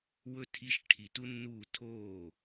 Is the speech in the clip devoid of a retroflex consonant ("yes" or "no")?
no